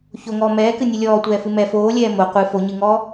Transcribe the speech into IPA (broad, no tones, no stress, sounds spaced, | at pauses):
ç o ŋ ɔː m ɛː k ɨ nʲ ɨ lʲ ɔː tʷ ɛː f ɨ m ɛ f oː lʲ ɛː m o qʷ ɨ f o ɲ ɨ ŋ ɔː